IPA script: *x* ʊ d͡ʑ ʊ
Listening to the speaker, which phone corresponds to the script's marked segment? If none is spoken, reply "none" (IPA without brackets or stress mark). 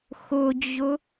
x